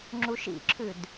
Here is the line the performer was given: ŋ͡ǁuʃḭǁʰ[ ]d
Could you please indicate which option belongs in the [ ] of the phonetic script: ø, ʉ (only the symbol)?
ʉ